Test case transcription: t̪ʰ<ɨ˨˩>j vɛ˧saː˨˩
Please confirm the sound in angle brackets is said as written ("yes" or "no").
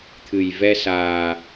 yes